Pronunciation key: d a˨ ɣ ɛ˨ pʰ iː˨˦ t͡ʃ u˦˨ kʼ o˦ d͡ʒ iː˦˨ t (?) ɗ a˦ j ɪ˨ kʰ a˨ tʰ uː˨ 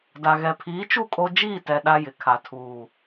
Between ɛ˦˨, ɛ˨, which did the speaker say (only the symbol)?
ɛ˨